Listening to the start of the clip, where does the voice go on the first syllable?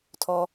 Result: low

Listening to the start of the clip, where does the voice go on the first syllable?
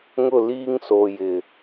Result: falling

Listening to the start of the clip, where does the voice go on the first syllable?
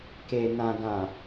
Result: low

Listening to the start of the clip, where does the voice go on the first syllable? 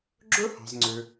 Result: high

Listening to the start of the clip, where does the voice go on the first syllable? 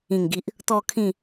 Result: low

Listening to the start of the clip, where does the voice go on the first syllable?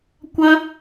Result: high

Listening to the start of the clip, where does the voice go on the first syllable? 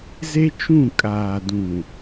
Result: high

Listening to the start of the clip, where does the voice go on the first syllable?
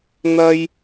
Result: high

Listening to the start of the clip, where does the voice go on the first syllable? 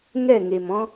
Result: falling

